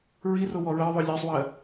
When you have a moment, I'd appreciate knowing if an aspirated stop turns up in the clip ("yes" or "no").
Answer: no